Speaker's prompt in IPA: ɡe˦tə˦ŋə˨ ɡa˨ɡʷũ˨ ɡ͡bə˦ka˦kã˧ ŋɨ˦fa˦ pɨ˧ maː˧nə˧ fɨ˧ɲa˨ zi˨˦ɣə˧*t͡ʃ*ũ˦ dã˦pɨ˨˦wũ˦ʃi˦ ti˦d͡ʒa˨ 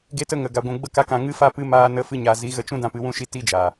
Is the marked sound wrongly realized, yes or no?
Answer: no